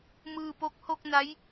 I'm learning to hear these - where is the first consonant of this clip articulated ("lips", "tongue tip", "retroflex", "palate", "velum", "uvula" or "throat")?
lips